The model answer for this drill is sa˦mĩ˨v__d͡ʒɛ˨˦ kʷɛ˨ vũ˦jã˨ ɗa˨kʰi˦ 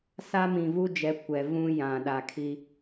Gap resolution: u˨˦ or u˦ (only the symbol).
u˦